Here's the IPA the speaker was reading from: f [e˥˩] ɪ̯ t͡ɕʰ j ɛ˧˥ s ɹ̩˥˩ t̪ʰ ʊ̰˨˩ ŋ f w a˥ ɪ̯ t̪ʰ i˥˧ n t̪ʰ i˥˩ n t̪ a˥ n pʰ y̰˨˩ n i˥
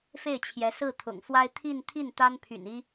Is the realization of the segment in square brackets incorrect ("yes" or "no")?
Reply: no